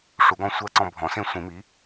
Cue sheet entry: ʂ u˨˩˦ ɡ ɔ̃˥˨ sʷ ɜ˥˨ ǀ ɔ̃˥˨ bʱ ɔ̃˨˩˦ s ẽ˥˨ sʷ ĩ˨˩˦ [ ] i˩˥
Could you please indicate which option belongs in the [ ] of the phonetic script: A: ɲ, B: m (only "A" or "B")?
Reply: B